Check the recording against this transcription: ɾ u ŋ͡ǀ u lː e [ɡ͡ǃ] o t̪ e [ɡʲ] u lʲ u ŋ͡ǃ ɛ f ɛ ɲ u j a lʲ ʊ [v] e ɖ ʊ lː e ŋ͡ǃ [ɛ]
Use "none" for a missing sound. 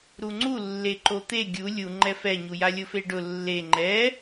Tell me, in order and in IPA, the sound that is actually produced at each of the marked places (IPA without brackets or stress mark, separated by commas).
ǃ, ɡʲ, f, ɛ